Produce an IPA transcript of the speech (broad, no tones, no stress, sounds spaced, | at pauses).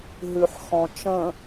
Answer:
ɦ ʉ ħ x ɔ̃ t͡ʃ ə̃